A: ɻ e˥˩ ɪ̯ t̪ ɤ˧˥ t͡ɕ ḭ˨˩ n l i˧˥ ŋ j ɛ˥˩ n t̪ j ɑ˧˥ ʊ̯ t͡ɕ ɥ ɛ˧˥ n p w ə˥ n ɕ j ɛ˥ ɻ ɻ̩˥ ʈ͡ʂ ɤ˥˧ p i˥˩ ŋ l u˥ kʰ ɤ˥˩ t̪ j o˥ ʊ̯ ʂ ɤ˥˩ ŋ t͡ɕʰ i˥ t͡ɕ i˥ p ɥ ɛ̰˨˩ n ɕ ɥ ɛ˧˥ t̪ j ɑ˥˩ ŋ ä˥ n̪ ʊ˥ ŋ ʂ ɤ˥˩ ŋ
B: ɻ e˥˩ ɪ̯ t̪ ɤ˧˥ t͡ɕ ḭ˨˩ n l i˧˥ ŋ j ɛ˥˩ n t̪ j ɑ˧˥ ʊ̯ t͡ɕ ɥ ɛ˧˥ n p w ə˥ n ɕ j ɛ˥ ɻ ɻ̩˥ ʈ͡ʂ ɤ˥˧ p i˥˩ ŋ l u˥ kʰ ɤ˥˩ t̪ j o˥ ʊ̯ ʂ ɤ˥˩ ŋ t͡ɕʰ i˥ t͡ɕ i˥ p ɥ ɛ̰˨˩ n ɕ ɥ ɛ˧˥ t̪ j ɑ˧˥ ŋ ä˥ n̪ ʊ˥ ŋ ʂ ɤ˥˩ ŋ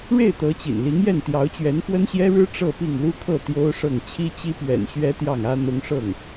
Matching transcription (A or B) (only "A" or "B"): A